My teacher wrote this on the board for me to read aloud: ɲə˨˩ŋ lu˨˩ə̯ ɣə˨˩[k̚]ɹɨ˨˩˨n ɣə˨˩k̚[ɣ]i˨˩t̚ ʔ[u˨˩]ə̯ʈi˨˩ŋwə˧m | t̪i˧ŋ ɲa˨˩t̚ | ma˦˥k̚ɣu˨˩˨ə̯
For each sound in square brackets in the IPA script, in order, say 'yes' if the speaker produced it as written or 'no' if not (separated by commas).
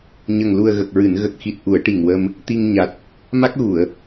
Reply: yes, no, no